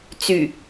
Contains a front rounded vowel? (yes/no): yes